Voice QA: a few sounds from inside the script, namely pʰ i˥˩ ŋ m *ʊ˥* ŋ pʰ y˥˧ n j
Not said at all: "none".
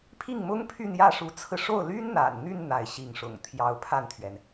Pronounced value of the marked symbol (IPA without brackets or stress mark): ʊ˥